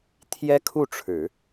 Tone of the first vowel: high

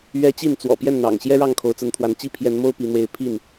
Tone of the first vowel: high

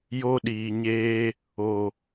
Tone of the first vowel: high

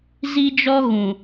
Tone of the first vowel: high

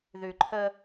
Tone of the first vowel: low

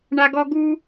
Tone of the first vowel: high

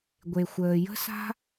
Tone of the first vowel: low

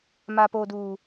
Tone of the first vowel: high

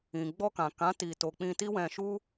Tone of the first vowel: low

